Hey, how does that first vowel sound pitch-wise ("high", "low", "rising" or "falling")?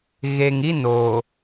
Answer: low